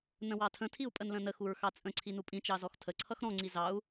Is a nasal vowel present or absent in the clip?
present